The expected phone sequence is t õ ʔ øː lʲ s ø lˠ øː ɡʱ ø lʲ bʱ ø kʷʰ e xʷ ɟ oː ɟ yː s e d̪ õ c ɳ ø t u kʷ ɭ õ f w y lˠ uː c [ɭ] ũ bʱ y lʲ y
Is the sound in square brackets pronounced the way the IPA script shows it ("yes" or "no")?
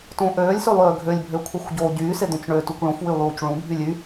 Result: yes